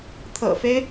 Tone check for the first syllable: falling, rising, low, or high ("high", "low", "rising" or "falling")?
low